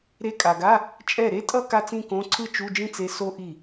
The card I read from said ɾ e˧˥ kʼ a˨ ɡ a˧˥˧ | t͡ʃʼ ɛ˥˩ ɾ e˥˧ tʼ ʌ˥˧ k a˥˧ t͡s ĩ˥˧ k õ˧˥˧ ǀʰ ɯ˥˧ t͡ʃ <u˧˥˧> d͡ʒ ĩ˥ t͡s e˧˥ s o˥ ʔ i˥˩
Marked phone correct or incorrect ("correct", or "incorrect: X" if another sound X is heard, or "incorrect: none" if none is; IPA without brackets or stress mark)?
correct